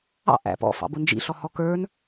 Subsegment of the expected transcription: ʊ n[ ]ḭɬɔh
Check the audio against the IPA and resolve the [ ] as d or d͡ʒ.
d͡ʒ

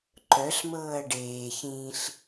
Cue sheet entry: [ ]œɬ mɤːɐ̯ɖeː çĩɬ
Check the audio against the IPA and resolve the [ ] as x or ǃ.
ǃ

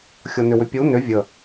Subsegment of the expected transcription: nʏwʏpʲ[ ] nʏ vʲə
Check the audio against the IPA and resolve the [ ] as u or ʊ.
u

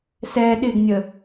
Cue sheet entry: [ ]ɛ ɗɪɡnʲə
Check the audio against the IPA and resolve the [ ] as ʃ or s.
s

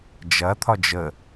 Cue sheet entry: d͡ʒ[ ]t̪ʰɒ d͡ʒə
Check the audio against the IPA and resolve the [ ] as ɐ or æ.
ɐ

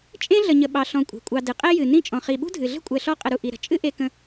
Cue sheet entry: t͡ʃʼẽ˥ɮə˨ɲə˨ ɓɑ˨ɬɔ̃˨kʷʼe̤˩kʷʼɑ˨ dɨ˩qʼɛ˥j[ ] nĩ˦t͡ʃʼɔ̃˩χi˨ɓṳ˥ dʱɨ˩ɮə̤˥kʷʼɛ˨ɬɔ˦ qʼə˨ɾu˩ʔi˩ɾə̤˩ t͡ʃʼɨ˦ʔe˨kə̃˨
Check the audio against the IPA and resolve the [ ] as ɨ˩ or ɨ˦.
ɨ˩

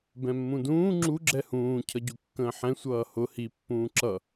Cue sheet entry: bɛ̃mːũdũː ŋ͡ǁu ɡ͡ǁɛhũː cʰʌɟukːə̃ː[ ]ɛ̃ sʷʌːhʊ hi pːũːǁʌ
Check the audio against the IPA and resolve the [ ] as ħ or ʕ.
ħ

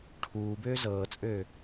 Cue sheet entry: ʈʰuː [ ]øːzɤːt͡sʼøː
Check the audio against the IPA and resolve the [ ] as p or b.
b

